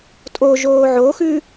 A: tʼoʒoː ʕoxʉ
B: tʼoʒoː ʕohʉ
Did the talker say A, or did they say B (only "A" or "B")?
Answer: A